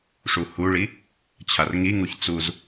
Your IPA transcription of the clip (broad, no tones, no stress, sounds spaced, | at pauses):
ʂ u h u ɭ i | t͡ɕʰ a r ŋ i ŋ u ç t͡s u z